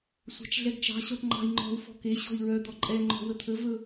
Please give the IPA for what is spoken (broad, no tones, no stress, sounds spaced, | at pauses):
sʷ ɑ̤ t͡ʃ ɮ ɛ ɡ t͡ʃ ɑ̤ ɕ ɔ̤ ʈ ŋ͡ǃ ɑ̤ i̯ ŋ͡ǃ ɔ̤ u̯ f ɔ̤ k e ɕ ɔ̤ i̯ ɹ œ d̪ ɔ ǃʼ ɛ ŋ͡ǃ ɔ̤ w ə t̪ʰ ə v ɵ